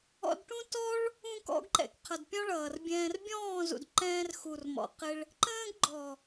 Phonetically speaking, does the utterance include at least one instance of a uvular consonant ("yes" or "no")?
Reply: yes